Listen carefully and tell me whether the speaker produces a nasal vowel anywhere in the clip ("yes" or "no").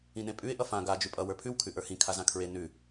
yes